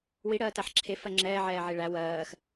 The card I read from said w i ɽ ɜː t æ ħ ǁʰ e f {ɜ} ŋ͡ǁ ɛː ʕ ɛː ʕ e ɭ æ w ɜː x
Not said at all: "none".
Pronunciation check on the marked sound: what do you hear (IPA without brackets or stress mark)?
ɜ